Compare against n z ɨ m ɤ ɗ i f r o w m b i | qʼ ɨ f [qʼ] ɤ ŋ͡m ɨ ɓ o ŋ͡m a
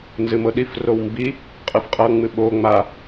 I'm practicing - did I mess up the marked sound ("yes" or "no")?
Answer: no